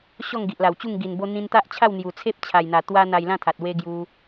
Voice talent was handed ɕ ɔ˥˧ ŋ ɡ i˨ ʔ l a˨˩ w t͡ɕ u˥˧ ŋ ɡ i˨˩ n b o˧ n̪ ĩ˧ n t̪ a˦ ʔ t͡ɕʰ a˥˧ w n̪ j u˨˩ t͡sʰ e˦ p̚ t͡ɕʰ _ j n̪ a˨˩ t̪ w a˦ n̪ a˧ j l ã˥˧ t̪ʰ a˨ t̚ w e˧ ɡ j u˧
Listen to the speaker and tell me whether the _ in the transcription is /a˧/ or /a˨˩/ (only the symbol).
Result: a˨˩